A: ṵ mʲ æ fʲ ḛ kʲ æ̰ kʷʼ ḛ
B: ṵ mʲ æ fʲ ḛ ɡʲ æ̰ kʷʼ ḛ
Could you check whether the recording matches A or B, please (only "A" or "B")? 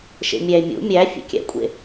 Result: A